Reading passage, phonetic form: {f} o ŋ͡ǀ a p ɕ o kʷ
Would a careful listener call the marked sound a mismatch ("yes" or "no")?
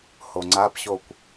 yes